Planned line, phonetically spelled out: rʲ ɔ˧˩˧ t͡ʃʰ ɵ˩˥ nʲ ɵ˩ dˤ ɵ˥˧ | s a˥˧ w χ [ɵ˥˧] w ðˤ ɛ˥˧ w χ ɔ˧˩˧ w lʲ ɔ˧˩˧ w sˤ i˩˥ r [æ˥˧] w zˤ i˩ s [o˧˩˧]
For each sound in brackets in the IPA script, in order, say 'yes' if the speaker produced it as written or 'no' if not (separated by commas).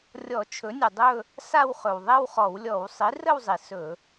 no, no, no